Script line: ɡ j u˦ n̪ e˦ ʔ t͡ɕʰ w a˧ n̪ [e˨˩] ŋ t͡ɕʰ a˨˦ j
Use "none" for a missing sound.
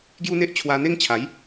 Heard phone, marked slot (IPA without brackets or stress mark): e˦